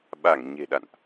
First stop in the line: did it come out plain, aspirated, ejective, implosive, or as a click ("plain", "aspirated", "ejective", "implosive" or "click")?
implosive